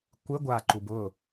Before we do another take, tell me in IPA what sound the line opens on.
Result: kʷ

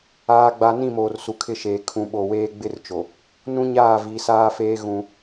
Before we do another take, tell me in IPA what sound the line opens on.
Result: aː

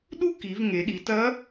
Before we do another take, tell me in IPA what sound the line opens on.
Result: ɗ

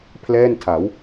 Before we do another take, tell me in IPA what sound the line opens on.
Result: pʰ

